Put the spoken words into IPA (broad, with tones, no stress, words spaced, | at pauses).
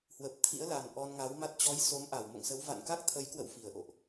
hwə˨˩p̚t̪ʰḭ˧˥ə̯la˨˩n ʔɔ˧nŋa˨˦wma˦˥t̚ t͡ɕɔ˨˦j so˨˦mʔa˧˩wmo̰˧˨ŋsə˨˦w va̰˧˨nka˦˥k̚t̪ʰə˨˦jkwə̰˧˨w fi˧˩ə̯ʔo̰˧˨ʔ